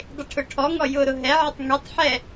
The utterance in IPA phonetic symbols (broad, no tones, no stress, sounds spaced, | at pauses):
dˤ ɪ ʈʰ ʊ ʈʰ ɔ ŋ ɔ j ʊ ɾ ʊ ɦ ɛ ʕ ə tˤ ŋ ɛ tˤ ħ ɛ